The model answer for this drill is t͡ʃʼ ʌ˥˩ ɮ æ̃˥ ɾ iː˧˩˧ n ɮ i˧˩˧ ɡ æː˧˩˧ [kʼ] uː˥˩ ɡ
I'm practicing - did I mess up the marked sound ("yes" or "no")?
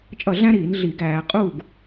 yes